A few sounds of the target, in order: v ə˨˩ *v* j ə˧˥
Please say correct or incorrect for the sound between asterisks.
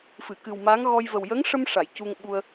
incorrect